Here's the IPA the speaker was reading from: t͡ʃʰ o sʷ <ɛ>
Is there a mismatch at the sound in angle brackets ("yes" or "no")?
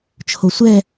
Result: no